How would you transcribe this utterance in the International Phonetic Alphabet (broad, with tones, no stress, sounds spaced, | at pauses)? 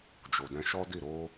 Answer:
d͡ʒ o˨ d ɛ̃˧ ʃ ɔ˦ d i˦˨ ɾ o˧